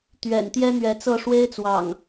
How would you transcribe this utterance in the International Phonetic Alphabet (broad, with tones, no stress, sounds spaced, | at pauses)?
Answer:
t̪ ɥ ɛ̰˨˩ n t̪ j ɛ˦ n̪ ɥ ɛ˨˦ t͡s ɤ˥˨ ʂ w e˦ ɪ̯ t͡s w ɑ̰˨˩ ŋ